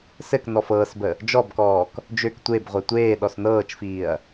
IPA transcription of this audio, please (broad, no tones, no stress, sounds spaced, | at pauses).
s ɘ k n ɔ f ɤː s b ə | d͡ʒ ɔ b k ɔː k | d͡ʒ ø k tʷ e b ʁʷ e tʷ eː ɗ ɔ s n ɤː t͡ʃ f iː ɐ̯